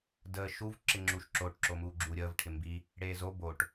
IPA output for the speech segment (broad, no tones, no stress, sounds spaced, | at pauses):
d əː ʃ u v ǁ ɪ ŋ͡ǁ u ʃ ǁ o ʈ ǁ o m uː ɡ͡ǁ uː ɾʲ əː v ʈʰ ɪ m b i | ɽ eː z o b o ʈ